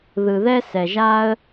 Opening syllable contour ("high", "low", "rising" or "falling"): low